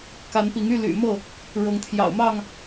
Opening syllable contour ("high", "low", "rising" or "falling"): rising